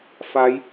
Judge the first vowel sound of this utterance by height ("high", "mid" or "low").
low